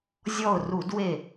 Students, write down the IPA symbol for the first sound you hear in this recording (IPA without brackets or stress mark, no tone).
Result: zʲ